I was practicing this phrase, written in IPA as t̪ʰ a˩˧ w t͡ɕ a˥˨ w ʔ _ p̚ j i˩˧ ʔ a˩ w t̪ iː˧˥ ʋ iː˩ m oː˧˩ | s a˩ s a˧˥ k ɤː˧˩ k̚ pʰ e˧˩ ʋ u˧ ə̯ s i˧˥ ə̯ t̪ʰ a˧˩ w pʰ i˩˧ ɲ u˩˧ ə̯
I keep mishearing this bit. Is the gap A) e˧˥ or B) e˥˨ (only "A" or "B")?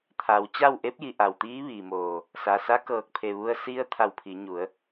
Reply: A